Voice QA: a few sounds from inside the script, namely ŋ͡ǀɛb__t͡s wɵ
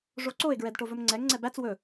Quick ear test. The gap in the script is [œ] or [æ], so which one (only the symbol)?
æ